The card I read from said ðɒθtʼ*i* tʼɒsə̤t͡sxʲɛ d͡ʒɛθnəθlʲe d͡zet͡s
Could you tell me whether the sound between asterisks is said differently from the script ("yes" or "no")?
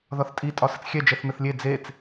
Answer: no